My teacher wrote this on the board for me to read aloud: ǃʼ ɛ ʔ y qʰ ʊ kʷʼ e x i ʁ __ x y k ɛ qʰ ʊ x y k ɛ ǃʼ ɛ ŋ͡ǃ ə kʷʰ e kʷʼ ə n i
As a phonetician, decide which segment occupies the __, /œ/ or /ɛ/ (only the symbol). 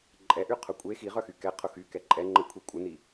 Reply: œ